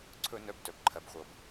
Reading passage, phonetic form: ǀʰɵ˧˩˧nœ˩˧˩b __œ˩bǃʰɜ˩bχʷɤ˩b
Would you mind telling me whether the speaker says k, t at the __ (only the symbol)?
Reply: t